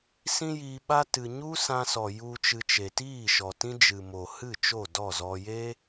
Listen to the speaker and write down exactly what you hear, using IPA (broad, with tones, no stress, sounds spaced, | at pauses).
s ĩ˦ j iː˧ ɓ a˦ t ɨ˧ ɲ u˦ s ã˧ s ɔ˨ j u˧ t͡ʃ ɨ˧ t͡ʃ e˨ t iː˦˨ ʃ ɔ˨ t ĩ˦ d͡ʒ ɨ˨ m o˨ h ɨ˦˨ t͡ʃ o˦˨ d ɔ˦˨ z ɔ˧ j e˦